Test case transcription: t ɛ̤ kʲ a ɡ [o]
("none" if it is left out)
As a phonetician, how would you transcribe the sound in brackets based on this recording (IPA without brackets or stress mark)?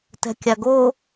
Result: o